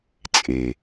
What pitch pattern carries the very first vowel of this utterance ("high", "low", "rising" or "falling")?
low